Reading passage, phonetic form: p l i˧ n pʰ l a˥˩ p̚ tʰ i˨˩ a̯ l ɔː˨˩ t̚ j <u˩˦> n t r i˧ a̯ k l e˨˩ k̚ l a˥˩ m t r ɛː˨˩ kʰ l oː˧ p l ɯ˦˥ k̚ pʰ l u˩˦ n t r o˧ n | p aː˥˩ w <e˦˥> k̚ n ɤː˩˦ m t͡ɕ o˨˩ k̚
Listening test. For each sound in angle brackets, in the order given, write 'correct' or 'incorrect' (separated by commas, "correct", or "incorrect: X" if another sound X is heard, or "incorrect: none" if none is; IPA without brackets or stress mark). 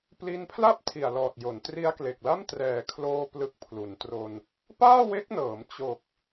incorrect: o˩˦, correct